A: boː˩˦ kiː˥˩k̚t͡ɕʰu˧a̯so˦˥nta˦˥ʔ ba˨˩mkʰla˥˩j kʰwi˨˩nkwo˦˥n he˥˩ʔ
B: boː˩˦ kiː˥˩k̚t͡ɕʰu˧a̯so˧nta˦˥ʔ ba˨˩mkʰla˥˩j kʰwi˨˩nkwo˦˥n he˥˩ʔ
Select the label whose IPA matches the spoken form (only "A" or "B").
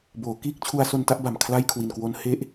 B